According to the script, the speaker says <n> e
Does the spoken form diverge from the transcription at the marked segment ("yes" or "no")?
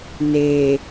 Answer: no